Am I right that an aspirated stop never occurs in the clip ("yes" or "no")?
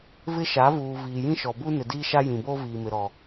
yes